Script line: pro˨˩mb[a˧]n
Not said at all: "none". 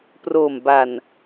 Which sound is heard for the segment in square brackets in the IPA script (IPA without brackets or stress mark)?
a˨˩